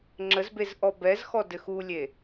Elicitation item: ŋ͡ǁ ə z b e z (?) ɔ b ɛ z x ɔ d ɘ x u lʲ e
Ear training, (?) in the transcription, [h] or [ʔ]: ʔ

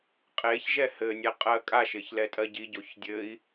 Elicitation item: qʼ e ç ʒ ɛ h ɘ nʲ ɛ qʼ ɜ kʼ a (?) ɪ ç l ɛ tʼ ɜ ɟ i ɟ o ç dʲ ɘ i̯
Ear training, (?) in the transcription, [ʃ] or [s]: ʃ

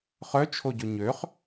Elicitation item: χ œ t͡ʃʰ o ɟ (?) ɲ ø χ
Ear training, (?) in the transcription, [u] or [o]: o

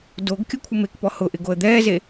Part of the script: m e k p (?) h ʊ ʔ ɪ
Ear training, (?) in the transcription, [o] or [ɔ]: ɔ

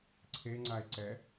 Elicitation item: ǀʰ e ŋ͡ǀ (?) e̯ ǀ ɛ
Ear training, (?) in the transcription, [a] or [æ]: a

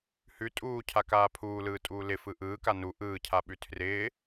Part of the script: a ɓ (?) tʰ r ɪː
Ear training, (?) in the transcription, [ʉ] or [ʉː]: ʉ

